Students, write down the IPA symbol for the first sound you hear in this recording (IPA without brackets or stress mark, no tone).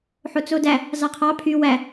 ħ